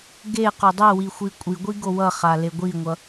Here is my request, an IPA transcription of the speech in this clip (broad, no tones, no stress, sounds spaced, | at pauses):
ɡ e q o dˤ ɛ w i xʷ i kʷʼ i ɡʷ i ɡ o w ʌ χ a l e ɡʷ i ŋʷ ʌ